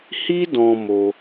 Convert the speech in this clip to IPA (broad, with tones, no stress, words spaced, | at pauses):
hi˦ dɔ̃˧mo˧